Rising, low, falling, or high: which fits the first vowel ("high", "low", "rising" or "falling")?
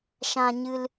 high